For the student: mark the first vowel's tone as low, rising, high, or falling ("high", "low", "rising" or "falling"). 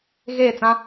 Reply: falling